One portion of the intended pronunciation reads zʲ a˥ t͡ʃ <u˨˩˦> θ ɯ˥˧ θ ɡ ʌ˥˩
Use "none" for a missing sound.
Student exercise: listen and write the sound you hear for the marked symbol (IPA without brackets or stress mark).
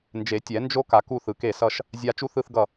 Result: u˥